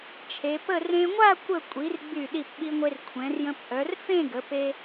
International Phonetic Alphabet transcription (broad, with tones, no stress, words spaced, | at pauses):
t͡ʃʰe˩˧pə˥˧ rẽ˧ŋʷa˥˧ kʷə˥˧ kʷʼi˩˧r ɡ͡by˧˩ ɗi˧˩pɓi˧ŋʷe˧r kʷʰɛ̃˩˧rjə̃˧p ʔœ˩˧r fẽ˥˧ ɡə˩˧pe˧